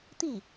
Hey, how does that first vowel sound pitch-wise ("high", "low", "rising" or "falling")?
falling